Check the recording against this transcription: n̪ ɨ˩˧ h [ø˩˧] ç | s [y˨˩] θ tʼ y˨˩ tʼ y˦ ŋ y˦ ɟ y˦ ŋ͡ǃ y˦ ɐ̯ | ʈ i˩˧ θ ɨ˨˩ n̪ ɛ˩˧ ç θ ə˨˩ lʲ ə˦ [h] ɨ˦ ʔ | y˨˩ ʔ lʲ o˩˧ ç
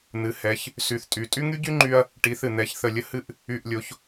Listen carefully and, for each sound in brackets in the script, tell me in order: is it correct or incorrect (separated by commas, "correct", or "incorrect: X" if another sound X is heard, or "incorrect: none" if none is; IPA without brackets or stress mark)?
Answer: incorrect: ɛ˩˧, correct, correct